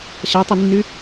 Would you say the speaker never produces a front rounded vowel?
no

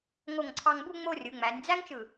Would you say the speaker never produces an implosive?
yes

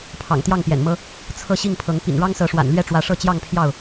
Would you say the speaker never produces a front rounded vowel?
yes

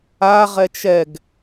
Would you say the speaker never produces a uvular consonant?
no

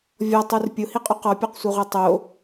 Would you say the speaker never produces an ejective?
no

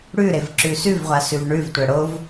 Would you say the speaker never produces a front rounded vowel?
yes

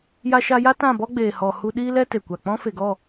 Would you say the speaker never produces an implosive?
no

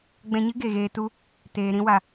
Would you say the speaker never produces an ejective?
yes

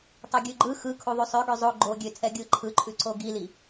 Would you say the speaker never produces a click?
no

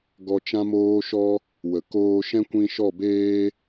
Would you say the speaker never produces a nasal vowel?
no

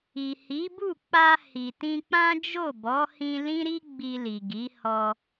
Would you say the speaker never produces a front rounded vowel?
yes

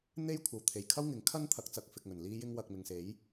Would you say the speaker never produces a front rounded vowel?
yes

